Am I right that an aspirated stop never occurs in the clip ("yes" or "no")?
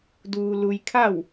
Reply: no